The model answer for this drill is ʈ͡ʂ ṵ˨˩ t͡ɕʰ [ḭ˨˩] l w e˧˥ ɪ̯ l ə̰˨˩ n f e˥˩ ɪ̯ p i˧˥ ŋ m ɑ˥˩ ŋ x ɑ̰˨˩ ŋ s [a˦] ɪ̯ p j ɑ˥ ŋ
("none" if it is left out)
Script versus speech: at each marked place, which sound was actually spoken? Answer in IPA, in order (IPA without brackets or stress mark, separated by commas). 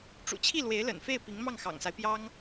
i˥˩, a˦